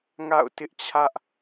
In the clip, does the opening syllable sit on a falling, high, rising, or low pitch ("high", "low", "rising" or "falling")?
falling